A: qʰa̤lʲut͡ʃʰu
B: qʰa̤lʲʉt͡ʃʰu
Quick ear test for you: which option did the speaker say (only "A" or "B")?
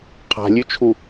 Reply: B